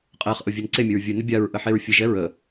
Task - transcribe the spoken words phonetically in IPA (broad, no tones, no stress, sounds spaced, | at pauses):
qʼ ɛ χ ʔ ʊ vʲ e n ǀ e mʲ ɵ ɹ vʲ ɨ n ə bʲ a ɹ ʔ ə ħ e ɹ fʲ ɨ ʒ ɛ ɹ ə